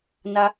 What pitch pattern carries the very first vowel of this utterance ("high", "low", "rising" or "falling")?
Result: high